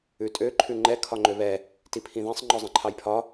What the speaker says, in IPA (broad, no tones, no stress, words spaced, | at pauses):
ʉtʼø ǃʰʉŋ͡ǃɛ kʰɒŋ͡ǃøβɛ | tipʰĩðɛ̃sˤ ŋ͡ǃɔzˤɛ̃ǃʰɑjpʰɒ